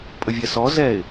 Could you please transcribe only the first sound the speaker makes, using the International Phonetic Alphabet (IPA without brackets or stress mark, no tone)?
pʼ